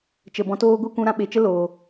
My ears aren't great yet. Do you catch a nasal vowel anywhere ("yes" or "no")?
yes